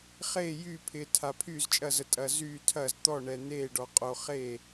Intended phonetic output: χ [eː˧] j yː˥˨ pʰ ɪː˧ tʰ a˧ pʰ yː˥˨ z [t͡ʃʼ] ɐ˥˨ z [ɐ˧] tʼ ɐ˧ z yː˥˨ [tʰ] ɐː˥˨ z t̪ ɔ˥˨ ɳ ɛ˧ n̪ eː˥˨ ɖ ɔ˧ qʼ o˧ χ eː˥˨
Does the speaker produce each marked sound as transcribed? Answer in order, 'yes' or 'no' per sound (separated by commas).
no, yes, no, yes